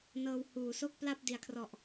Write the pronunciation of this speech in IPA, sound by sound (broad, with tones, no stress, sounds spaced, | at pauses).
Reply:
n ɤː˧ w h uː˩˦ s o˥˩ k̚ p l a˥˩ p̚ d i˩˦ a̯ kʰ r ɔ˨˩ ʔ